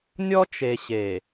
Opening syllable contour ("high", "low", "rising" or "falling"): high